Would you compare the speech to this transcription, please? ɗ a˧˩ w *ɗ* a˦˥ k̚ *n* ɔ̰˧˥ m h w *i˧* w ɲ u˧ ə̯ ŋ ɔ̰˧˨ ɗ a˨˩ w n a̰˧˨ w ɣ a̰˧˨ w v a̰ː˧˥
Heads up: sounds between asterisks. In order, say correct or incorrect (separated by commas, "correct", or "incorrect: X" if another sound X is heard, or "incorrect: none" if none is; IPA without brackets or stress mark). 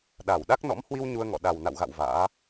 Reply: correct, correct, correct